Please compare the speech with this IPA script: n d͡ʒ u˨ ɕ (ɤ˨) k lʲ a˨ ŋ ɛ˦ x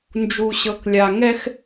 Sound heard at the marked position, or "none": ɤ˨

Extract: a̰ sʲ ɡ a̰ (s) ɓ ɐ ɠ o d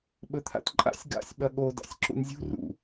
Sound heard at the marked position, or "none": sʲ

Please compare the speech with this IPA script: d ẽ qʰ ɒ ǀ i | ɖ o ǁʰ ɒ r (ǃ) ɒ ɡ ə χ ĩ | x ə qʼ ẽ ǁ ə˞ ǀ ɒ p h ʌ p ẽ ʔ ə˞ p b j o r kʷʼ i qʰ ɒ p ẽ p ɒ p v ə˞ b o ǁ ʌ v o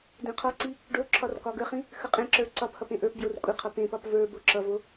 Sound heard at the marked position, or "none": k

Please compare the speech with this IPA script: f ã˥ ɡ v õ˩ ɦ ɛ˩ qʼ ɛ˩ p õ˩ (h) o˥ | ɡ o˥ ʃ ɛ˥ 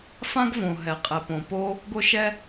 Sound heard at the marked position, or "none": p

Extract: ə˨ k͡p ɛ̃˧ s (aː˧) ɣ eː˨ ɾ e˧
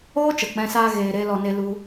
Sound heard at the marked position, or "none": aː˧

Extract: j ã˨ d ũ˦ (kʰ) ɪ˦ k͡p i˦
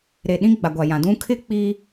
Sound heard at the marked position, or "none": kʰ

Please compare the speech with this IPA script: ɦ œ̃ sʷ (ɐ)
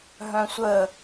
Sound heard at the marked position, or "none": ə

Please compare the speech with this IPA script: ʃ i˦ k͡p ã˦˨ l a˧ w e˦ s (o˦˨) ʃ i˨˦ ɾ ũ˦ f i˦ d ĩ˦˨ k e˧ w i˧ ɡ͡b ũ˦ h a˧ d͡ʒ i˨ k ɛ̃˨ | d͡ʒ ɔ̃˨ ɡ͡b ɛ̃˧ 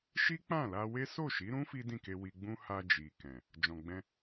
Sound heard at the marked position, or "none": o˦˨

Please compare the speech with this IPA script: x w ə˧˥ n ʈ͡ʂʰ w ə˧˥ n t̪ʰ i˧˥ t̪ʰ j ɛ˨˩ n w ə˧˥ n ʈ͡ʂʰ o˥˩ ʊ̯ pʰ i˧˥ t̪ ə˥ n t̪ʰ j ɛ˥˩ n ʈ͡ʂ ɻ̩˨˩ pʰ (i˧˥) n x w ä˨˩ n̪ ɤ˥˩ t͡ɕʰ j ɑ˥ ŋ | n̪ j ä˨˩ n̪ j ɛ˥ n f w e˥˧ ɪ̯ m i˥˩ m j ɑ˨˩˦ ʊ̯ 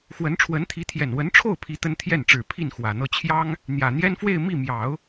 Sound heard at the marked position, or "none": i˥˩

